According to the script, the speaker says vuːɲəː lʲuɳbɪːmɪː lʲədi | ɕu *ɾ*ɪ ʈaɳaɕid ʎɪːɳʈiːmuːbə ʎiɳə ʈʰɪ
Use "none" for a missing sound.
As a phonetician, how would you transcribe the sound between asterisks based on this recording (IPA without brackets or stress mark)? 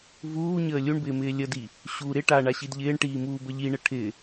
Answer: ɾ